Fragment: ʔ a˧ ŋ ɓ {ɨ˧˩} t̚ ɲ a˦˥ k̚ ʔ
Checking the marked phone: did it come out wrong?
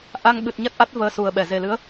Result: yes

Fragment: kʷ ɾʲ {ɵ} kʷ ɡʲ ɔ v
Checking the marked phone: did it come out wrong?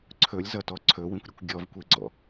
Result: no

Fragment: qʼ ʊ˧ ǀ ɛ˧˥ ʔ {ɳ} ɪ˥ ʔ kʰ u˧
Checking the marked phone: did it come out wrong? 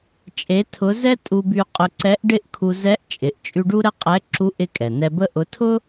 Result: yes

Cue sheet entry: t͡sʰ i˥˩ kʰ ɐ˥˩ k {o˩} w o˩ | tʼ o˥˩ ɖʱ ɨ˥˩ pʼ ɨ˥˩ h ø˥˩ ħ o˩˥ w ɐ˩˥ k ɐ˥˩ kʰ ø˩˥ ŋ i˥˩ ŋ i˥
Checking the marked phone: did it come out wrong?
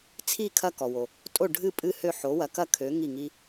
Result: yes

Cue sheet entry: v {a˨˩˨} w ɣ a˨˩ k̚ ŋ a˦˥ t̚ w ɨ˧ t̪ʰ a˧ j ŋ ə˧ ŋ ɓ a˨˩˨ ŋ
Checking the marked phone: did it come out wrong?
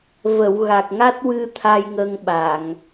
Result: yes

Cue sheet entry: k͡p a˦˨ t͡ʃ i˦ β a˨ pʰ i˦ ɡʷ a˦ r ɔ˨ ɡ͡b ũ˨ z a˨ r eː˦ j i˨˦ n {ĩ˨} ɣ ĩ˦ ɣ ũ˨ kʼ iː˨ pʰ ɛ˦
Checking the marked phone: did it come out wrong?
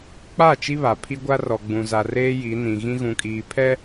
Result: no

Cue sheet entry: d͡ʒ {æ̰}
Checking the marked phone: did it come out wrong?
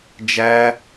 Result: yes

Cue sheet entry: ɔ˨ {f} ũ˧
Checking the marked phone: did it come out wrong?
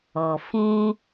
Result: no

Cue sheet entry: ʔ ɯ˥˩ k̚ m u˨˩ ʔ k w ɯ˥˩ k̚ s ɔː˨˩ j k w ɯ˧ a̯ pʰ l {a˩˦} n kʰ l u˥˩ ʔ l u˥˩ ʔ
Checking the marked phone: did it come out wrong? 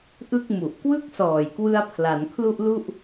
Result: no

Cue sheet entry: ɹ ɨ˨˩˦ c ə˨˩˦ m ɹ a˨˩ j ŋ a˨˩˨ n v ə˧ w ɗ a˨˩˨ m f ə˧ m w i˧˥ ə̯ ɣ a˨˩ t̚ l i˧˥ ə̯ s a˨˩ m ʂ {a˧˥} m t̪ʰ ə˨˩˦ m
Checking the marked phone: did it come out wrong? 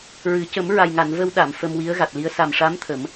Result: no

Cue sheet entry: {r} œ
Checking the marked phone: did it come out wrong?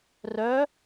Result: no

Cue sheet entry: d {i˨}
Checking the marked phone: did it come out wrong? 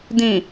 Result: yes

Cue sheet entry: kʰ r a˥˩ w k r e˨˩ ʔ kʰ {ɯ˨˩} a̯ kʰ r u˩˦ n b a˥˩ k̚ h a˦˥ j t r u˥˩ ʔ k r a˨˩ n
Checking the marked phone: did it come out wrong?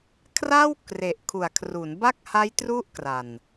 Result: yes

